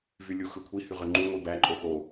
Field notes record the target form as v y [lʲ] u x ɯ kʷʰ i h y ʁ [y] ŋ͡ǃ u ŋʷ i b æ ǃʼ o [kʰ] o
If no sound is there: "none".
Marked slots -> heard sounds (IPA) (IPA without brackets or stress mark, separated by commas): lʲ, ø, x